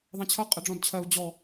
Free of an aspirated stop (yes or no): no